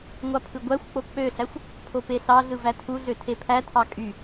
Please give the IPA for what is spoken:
ŋʷ ɑ pʰ ɯ ɡʷ æ xʷ k͡p o k͡p ø ɬ æ xʷ | pʰ o p e ɬ ɑ ɮ ɯ v æ tʰ u ɮ ø tʰ e pʰ æ tʰ ɑ kʼ y

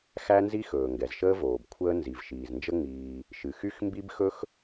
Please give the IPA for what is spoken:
x æ˥ n z i˥ x ɵː˩ ŋ ɡ ɛ˩ z ʃ əː˥ v oː˩ b kʷʰ əː˥ n z i˩ v ʃ iː˩ z n d͡ʒ ə˥ ŋ͡m iː˩ | ʃ ɨ˩ x y˥ x m b i˥ b x ɵ˥ x

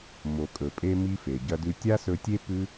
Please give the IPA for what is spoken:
m o˩ kʼ ɵ˩ pʼ e˧ m i˧ f e˩ ɟ ɐ˧ d ʉ˧ tʲ a˥ s ɵ˧ tʲ e˥ p ʉ˥

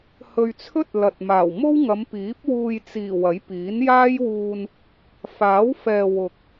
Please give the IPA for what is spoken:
h ɵ˧ ɥ t͡sʰ ɵ˥ t̚ l ɐ˨ t̚ m aː˨˩ w m o˥ w ŋ ɐ˨˧ m p iː˨˥ p̚ w uː˧ j t͡s iː˨˩ w ɐ˨˥ j p iː˨˥ n j aː˥ j w uː˧ n | f aː˨˥ w f ɛː˨ w ʊ˨ k̚

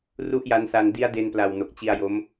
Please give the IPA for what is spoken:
r u˥˩ ʔ j a˦˥ n s a˧ n d i˦˥ a̯ d e˧ n p l a˨˩ w n o˨˩ k̚ t͡ɕ i˧ a̯ j o˦˥ m

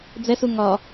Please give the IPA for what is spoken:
d͡z ɛ s u ŋ ɒ

